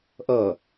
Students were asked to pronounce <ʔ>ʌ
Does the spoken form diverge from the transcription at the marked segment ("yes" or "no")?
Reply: no